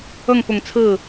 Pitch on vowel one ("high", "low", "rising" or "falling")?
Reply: falling